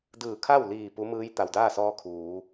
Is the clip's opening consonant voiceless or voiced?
voiced